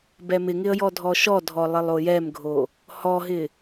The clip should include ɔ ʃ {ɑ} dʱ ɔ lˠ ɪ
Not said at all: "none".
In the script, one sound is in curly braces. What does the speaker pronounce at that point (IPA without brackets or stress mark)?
ɔ